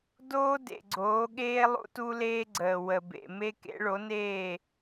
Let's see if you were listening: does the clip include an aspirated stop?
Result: no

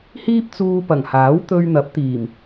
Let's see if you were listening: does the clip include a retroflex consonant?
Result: no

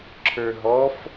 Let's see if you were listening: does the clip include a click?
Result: yes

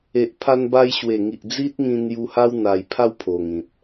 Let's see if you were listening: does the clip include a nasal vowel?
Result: yes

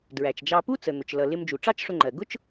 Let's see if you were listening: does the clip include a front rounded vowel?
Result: no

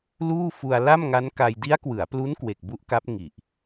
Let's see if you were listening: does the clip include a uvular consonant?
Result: no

